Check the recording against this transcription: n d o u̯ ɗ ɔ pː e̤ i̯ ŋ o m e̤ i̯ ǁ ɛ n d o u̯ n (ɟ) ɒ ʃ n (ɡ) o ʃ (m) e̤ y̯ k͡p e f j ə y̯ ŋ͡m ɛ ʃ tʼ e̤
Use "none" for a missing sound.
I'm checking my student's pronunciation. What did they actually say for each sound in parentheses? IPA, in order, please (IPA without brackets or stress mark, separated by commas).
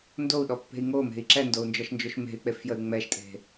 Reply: d͡ʒ, d͡ʒ, m